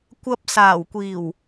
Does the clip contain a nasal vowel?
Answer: no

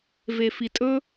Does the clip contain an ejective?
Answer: yes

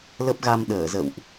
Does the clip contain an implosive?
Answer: yes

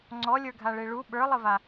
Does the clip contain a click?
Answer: yes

